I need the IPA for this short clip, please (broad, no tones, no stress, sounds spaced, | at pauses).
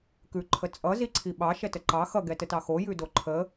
k ʉ ǃʰ ə t͡sʼ ʌ z i ǀʰ i ɓ ɑ ʃ ɛ t ə ǃ ɑ x ʌ ɡ ɛ t ə t ɑ x o j ʉ d o ǃʰ ə